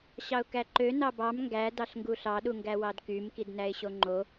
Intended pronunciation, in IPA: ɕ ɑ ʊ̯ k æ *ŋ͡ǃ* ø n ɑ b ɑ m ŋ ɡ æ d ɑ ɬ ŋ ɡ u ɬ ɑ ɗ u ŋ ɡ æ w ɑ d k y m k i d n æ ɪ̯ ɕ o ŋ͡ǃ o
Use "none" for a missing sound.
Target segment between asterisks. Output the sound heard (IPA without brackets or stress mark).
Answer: ǃ